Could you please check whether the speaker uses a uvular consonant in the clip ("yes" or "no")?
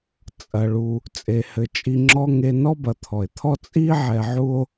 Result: no